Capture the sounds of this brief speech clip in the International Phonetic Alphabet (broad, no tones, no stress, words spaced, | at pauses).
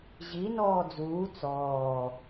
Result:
ʑi nɔːd͡zuː t͡sɔː